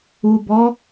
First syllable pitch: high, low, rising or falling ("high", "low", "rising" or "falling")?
low